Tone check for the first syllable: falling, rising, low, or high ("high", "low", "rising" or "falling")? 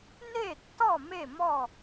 falling